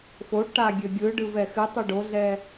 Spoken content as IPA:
fo ʈa ɡʲøɡʲɯɖɯv ɛxɨtˤɯ ɖoɮɛ

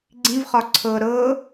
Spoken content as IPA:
ɡ͡ǀĩvχɒ ǀʰɤ ɾɤ

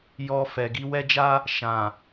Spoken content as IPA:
jɔ˧fɛ˨ ɡi˨˦wɛ˦d͡ʒa˦ | ʃã˨

